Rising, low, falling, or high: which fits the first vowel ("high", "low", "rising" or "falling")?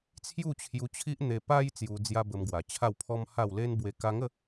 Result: falling